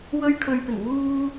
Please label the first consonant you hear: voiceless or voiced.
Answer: voiced